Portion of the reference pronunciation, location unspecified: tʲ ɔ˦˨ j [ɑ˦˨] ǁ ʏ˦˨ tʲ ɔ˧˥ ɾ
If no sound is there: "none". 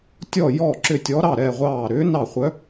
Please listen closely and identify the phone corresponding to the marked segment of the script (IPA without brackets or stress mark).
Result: ɔ˦˨